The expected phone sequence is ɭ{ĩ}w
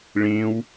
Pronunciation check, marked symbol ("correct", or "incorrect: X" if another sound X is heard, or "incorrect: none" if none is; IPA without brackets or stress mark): correct